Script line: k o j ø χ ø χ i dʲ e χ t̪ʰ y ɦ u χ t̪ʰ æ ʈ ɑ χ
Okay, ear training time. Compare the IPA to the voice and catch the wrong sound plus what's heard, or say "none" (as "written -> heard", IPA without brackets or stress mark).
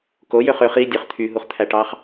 e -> ø